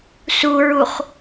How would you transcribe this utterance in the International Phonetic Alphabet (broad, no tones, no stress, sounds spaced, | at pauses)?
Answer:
s u ɹ u χ